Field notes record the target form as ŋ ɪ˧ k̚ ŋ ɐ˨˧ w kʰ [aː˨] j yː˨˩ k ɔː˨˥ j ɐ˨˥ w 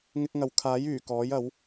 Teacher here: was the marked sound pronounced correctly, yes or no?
no